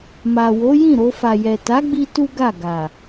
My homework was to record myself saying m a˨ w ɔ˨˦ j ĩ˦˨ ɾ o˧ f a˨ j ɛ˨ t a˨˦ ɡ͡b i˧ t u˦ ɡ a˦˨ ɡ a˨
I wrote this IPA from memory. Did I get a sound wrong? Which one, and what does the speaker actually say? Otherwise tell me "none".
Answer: ɔ˨˦ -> o˨˦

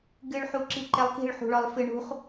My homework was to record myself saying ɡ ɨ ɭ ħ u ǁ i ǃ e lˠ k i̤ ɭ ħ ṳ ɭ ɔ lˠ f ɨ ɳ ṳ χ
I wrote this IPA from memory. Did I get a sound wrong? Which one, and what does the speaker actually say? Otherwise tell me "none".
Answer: none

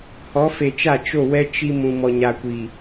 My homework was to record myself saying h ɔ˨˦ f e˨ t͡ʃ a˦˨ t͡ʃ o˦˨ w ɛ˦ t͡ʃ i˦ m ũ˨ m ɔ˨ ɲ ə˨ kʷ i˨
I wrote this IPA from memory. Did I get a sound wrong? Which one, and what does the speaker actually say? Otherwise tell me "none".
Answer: ə˨ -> a˨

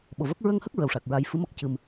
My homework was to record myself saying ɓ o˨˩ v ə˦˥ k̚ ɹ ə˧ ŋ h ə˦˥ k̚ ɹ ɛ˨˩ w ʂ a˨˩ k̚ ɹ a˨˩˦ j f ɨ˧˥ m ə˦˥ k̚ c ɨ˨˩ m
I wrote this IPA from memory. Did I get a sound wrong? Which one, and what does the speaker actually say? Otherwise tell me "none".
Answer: ɛ˨˩ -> ə˨˩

